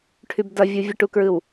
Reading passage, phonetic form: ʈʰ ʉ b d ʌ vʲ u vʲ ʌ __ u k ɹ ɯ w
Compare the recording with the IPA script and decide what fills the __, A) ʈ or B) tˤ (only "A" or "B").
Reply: A